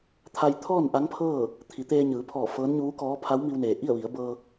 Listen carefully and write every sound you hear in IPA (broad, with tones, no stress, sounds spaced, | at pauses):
t̪ʰ a˧ j t̪ʰ ɔː˥˨ n ʔ a˧˥ ŋ pʰ ɤː˥˨ | t̪ʰ i˩˧ t̪ eː˧ ɲ ɯː˩˧ pʰ ɔː˧˩ f ɤː˧˥ n ɲ uː˧˥ k ɔː˧˥ pʰ a˧˥ w m i˧ w n eː˩ ʔ i˥˨ ə̯ ʋ i˩˧ ə̯ b ɤː˧